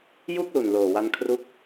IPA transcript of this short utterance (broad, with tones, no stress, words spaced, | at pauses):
ju˥˩k̚lu˨˩nloː˨˩ wa˧nkʰru˦˥k̚